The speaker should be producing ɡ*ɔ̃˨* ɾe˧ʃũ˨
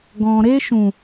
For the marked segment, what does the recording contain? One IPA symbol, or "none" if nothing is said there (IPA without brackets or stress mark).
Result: ɔ̃˨